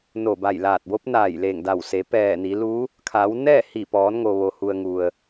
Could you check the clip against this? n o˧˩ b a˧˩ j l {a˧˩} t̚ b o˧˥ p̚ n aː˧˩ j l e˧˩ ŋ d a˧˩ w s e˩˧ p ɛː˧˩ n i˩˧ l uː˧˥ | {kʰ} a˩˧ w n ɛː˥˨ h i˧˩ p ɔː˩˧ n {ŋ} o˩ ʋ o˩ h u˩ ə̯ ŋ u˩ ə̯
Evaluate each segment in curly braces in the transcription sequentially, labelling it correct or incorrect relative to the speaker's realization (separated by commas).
incorrect, correct, correct